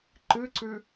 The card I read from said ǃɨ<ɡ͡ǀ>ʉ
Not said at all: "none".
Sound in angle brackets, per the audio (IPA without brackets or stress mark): ǀ